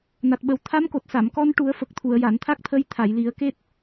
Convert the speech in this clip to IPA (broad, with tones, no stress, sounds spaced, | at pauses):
n a˨˩ t̚ ɓ ə˨˩ w t̪ʰ a˧˥ m k o˨˩ t̚ s a˨˩˨ m k ɔ˧ n ʈ u˨˩˦ ə̯ f ə˨˩ k̚ t̪ʰ u˨˩˨ ə̯ j a˨˩˨ n t̪ʰ a˦˥ k̚ t̪ʰ ə˧˥ j t̪ʰ a˨˩˨ j l i˨˩˦ ə̯ k e˦˥ t̚